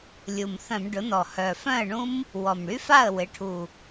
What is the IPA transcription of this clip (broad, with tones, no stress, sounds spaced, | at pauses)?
lʲ u˨˩ m θ œ̃˧˩˧ m ɖ ʊ˩˥ n ɔ˨˩ h œ˨˩ f œ̃˥˩ ə̯ ɳ ũ˦˥ m | w ɔ˨˩ m ɽ y˦˥ f a˥˩ ə̯ w ɪ˩˥ ʈʰ u˨˩